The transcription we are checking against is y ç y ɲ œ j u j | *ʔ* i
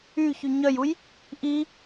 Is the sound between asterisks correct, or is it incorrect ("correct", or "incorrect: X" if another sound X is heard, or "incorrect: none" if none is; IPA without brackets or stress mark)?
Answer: correct